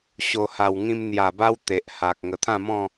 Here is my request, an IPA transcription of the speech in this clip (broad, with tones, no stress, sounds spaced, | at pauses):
ɕ o˨˩ h a˨˩ w ŋ ĩ˧ m n̪ j a˨˩ b a˦ w t̪ e˨ ʔ h a˨ k̚ ŋ ə˨˩ t̪ʰ ã˥˧ m ɔ̃˥˧